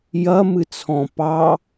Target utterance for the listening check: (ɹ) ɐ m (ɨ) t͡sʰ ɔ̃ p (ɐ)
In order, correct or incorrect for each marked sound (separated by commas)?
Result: incorrect, correct, incorrect